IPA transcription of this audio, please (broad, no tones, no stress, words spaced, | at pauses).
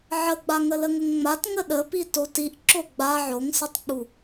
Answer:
ʕəɡ͡ba ŋələŋəŋŋ͡mat ŋəɗəpi totiʔ ǁoɡ͡ba ʕoŋsətˤk͡pu